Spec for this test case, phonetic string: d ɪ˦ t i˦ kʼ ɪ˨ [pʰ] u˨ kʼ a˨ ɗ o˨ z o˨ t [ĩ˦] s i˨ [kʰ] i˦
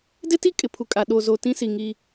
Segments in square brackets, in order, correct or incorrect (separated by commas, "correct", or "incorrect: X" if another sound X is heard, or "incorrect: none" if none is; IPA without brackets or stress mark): correct, correct, incorrect: ŋ